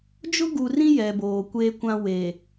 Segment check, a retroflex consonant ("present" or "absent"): absent